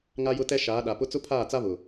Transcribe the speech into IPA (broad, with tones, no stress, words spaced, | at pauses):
ŋa˦jʊ˦tɛ˦ ʃaː˨˦ɗa˨pʊ˦ t͡sʊ˦pʰaː˦˨t͡sa˦βʊ˨